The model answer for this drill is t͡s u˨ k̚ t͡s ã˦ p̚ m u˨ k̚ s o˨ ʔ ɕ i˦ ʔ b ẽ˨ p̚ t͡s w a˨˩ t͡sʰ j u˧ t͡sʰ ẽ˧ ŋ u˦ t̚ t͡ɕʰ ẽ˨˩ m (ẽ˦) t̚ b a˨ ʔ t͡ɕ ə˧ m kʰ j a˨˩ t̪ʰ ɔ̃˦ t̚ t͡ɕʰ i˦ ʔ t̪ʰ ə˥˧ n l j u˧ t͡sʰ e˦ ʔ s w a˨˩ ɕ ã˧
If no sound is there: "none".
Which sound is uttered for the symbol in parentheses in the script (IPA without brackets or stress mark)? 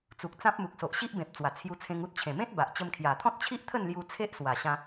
ẽ˦